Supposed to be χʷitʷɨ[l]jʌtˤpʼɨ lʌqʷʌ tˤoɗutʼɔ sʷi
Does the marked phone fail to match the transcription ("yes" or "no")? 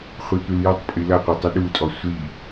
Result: no